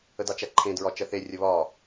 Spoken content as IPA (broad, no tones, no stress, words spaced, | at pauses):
ədɑt͡ʃæǃʰẽ dɹɒt͡ʃɜθe rʲəβɒ